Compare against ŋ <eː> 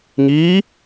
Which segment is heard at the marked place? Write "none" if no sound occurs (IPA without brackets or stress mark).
iː